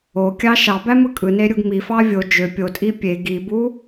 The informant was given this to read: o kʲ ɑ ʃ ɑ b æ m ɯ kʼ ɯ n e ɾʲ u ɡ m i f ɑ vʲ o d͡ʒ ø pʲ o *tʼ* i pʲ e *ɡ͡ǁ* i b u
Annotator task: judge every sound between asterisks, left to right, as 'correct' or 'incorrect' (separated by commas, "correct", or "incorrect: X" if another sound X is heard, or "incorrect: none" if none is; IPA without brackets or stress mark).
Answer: correct, incorrect: ɡ